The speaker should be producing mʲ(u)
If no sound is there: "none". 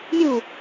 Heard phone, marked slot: u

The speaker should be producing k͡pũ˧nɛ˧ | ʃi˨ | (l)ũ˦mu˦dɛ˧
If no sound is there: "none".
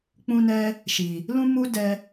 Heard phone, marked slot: l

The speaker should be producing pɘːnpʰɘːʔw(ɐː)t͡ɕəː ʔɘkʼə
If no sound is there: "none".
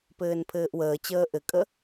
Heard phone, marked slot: əː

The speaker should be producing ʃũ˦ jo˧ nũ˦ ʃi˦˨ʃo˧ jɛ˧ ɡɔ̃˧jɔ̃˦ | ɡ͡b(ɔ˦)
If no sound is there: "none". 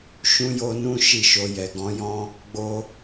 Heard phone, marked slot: o˦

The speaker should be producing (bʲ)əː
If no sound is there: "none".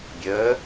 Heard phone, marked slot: bʲ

